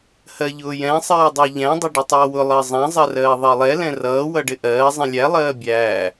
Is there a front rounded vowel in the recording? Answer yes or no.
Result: no